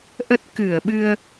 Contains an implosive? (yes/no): yes